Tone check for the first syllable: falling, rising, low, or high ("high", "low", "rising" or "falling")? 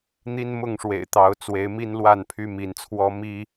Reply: high